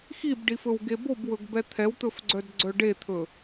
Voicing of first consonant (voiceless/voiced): voiceless